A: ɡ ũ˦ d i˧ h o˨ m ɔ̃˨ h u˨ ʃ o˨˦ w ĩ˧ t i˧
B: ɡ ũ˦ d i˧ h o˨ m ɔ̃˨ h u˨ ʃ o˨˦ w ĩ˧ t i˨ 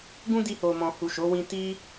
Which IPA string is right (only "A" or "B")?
A